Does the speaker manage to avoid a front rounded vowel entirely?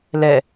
yes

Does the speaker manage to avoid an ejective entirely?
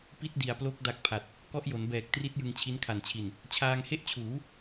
yes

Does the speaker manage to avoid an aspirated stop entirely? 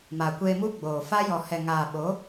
yes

